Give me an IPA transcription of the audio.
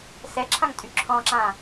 s ɛ ǁʰ ã ŋ tʼ y ǁʰ ɔ̃ ǁ ã

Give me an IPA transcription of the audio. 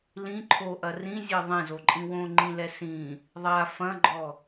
l ĩ ǃʰ o ʔ ɐ r ĩ zʲ e ðˤ ẽ z o ǃʼ ĩ w õ ŋ͡ǃ ĩ l ɛ s ĩ | ðˤ a f ɐ̃ ɡ͡ǃ ɔ

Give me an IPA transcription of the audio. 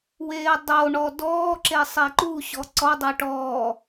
w eː dˤ o ɳ ɔ d ɔː ǁ e sˤ e ǃ u ɕ ɔ ǀ ɔ dˤ ɛ ʈ ɔː

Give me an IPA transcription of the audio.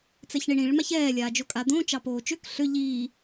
t͡s ɛ ç ɳ i ɳ ĩ ɭ m a ç ɛː lʲ aː d͡ʒ o kʼ a d̪ õː t͡ʃ ɑ p oː t͡ʃ ø k ɬ ʏ ʎ iː

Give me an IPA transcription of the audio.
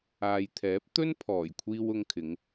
aː˨ j t̪ʰ ɛː˨˥ p̚ t̪ ɵ˥ n pʰ ɔː˨˩ j kʷʰ iː˧ w ʊ˧ ŋ kʰ ɪ˨˧ ŋ

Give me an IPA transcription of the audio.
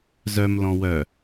z œ m l ɔ̃ w œ

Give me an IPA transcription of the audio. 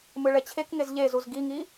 m ɯ ɭ ɛ t͡ɕʰ e k ŋ e z ʎ e z u z ɡ i ŋ i

